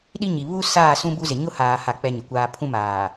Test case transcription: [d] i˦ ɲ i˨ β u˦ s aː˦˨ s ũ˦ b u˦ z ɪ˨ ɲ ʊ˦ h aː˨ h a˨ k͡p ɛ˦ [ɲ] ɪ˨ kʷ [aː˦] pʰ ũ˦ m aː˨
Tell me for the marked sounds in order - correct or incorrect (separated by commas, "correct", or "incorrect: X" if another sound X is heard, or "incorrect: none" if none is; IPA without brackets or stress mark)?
incorrect: ɗ, correct, correct